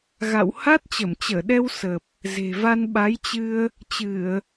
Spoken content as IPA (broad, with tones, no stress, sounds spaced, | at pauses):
ɣ a̰˧˨ w h a˦˥ t̚ t͡ɕ ə˧˩ m t͡ɕ əː˧˩ ɗ ɛ˧ w s ə˨˩ p̚ | z e̤˨˩ v a˧ n ɓ a˨˦ j t͡ɕ ɨ˧ ə̯ | t͡ɕ ɨ˧˩˨ ə̯